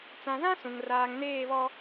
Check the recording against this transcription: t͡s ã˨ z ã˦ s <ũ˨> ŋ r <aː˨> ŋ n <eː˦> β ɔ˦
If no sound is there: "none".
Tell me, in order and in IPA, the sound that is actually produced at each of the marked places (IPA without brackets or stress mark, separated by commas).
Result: ũ˨, aː˨, eː˦˨